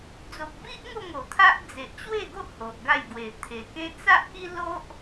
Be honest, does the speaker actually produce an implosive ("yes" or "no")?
no